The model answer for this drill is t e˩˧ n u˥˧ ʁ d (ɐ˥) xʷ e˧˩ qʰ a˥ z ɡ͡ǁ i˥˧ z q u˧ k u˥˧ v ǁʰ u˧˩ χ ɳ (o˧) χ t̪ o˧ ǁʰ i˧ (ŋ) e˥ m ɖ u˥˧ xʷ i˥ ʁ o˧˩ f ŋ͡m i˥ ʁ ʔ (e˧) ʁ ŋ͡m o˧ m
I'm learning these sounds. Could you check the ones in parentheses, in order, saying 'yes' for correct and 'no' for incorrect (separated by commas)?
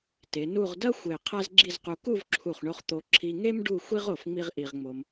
yes, yes, yes, no